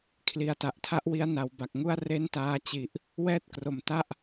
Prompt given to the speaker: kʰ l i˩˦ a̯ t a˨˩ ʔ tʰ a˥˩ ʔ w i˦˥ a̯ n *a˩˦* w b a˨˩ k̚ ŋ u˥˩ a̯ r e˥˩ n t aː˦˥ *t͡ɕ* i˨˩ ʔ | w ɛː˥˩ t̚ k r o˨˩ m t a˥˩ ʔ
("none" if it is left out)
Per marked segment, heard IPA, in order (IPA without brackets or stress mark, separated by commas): a˩˦, t͡ɕ